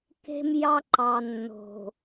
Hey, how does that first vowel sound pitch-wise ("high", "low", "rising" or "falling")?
high